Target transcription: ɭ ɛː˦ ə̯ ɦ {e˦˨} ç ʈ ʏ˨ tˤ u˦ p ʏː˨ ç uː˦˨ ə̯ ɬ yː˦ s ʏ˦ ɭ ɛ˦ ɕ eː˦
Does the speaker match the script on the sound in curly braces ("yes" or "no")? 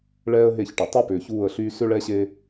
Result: yes